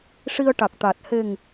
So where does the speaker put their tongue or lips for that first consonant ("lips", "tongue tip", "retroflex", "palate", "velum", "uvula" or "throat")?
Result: retroflex